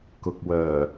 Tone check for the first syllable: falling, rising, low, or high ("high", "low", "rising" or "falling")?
low